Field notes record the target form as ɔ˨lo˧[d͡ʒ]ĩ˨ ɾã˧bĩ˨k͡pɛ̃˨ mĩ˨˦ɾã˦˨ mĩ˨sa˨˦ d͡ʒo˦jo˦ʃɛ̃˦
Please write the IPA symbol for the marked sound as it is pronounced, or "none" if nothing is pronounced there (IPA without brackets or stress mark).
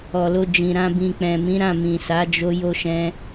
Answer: d͡ʒ